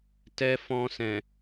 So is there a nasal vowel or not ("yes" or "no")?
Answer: yes